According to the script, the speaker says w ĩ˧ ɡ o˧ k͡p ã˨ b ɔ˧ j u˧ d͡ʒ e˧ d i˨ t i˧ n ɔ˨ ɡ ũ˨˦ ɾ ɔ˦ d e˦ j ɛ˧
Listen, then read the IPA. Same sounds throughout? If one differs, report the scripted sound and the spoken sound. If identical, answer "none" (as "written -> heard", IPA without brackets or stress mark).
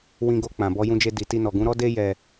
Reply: u˧ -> ũ˧